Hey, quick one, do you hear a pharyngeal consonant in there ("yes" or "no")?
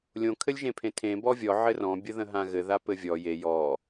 yes